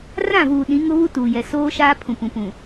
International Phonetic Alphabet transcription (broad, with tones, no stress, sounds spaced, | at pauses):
r ã˦˨ v uː˨ ɗ ĩ˨˦ ŋ ʊ˦ β u˦ t uː˨ j ɛ˨ s oː˦ ʃ aː˦ pʰ ũ˨ p ũ˨ p ũ˨